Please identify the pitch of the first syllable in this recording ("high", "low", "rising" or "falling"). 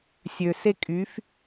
low